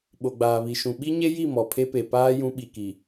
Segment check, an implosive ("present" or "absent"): present